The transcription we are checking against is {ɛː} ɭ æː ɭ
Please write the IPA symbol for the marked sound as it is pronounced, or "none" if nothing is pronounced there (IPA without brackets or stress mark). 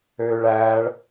øː